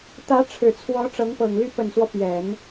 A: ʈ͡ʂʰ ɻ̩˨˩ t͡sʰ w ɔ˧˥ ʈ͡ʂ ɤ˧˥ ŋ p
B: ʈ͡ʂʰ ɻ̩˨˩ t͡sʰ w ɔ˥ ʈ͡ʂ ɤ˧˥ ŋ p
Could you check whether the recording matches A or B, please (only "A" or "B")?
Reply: A